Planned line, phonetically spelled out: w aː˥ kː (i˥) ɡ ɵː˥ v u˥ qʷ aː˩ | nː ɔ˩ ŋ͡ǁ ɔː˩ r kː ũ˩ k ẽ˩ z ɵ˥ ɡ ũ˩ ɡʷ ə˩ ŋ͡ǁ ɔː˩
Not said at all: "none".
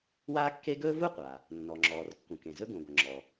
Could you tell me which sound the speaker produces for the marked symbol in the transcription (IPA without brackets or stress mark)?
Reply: e˥